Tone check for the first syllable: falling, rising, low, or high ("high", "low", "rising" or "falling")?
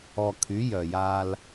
low